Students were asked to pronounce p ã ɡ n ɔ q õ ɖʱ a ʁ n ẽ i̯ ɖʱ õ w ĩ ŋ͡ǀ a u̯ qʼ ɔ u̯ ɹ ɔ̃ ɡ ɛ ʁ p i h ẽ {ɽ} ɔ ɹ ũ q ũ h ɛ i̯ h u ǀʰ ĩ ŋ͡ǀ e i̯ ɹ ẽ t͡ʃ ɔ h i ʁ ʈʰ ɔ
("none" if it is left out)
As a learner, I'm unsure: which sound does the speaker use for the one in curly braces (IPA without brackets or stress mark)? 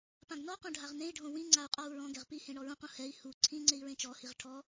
ɳ